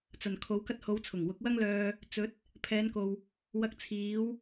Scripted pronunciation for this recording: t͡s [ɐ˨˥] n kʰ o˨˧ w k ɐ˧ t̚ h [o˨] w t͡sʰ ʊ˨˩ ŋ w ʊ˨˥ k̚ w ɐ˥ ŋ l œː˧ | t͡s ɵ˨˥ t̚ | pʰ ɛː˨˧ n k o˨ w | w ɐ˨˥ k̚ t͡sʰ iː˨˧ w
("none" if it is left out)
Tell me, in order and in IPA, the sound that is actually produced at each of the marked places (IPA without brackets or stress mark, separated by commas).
ɐ˨˩, o˨˧